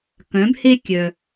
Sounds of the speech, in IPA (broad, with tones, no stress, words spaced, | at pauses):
kœ̃˩˧bhe˧kʲœ˩